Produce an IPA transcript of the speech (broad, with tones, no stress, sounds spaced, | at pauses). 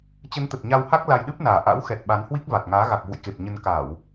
t͡ɕ ə˨˦ n t̪ ə˨˩ t̚ ɲ a˧ w h a˦˥ k̚ l a˧ j ɗ ɨ˦˥ p̚ n aː˨˩ ʔ a̰˧˥ w x ɛ˨˩ t̚ ɓ a˨˦ n h w i˦˥ k̚ v a˨˩ t̚ ŋ aː˨˦ ɣ a˨˩ k̚ v ṵ˧˨ j k e˨˩ p̚ ɲ ə˧ n k a˧˩˨ w